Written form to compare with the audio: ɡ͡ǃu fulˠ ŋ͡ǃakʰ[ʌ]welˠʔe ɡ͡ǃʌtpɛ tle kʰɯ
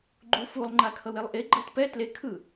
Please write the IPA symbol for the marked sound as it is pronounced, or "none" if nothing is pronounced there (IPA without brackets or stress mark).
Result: ʌ